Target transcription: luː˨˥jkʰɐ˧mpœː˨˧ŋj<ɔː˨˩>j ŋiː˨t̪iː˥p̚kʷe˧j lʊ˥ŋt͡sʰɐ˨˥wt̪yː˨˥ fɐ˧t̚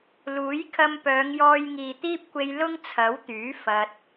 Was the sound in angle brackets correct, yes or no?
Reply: no